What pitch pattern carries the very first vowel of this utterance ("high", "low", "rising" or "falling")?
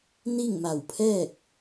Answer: falling